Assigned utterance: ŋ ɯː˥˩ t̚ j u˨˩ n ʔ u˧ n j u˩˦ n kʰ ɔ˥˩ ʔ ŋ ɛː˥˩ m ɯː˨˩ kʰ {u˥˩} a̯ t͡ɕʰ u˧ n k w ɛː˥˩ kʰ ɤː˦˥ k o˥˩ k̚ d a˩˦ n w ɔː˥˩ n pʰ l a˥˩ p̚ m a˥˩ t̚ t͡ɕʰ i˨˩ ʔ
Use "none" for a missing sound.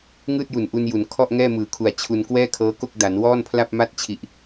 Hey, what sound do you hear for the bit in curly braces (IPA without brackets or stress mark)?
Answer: u˨˩